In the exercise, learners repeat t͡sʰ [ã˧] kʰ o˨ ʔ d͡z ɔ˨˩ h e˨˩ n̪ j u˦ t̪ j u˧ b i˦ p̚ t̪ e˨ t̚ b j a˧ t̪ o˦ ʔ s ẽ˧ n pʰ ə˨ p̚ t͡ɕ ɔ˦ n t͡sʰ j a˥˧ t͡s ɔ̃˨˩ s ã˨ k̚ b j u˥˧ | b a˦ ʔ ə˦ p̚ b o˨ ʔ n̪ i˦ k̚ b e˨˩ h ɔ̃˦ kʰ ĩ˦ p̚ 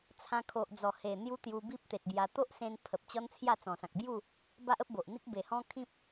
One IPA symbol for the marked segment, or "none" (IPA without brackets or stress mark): ã˧